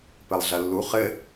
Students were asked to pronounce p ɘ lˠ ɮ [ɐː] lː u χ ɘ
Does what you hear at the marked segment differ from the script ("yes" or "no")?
yes